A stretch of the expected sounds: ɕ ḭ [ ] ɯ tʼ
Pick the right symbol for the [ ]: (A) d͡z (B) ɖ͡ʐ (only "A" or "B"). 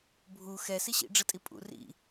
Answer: B